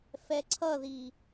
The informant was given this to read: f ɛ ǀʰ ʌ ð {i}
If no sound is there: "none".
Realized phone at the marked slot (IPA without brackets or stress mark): i